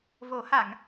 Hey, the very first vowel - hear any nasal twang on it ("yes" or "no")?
no